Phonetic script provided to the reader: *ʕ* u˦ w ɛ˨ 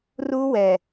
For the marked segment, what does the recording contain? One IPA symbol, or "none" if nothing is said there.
r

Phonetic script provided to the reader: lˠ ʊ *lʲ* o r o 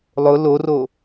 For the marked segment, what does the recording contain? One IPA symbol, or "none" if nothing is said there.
l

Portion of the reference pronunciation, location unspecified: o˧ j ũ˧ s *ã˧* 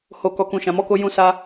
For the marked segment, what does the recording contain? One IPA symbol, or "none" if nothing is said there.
a˧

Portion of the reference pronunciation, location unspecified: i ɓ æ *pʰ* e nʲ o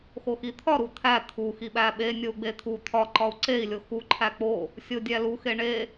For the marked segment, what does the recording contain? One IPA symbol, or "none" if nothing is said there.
ɓ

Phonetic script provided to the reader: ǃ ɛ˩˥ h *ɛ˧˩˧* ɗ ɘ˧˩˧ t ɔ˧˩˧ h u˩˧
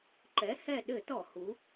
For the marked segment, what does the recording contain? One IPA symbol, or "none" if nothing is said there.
ɛ˦˨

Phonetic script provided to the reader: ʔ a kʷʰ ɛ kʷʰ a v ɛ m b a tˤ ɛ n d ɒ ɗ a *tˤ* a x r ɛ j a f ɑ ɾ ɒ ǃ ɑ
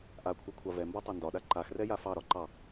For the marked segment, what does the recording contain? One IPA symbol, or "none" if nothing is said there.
ǃ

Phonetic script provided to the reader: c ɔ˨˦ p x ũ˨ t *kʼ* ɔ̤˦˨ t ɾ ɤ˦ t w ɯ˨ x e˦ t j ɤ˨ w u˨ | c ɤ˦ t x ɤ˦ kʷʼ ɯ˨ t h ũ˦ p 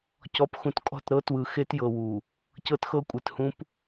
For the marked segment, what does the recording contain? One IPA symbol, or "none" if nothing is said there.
kʼ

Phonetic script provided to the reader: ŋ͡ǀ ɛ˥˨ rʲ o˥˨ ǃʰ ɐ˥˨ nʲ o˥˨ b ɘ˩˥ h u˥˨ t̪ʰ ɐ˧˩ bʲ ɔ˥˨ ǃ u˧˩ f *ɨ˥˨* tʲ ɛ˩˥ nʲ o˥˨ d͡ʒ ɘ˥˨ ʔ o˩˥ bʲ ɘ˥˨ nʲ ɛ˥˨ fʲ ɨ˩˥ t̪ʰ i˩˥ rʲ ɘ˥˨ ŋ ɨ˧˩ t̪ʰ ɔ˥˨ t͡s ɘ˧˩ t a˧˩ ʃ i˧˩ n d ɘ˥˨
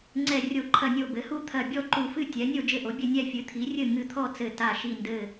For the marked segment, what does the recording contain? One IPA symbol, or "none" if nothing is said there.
ɨ˥˨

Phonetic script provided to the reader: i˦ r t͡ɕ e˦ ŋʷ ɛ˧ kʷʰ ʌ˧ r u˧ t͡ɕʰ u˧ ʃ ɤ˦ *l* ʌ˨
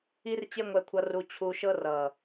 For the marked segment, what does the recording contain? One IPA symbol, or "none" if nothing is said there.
r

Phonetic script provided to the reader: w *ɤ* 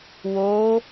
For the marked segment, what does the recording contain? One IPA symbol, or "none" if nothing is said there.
o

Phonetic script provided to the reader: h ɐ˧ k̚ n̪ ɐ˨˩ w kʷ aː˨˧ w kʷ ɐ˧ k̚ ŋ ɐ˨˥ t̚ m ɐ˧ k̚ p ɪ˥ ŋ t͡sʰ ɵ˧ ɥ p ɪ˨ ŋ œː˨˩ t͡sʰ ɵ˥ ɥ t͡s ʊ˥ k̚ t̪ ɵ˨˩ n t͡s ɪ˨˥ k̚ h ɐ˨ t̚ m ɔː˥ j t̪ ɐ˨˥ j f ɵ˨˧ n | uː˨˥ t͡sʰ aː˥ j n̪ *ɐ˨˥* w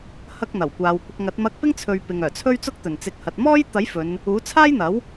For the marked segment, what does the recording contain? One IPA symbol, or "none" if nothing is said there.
ɐ˨˥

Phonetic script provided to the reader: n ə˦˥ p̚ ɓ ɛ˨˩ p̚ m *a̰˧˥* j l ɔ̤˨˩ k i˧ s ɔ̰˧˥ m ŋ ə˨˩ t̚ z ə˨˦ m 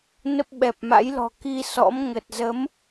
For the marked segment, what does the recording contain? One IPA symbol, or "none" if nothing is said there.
a̰˧˥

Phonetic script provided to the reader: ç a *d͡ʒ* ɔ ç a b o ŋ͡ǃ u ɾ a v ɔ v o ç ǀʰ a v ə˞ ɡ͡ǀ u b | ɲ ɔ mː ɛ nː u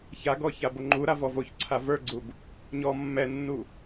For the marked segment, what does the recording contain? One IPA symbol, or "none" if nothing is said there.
ɡ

